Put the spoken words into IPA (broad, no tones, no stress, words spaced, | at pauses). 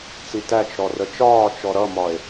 t͡sitæt͡ʃɾɔ rət͡ʃɒːt͡ʃɔ ɾʌmɒe̯